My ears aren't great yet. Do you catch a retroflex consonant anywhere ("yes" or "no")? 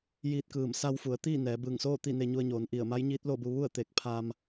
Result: no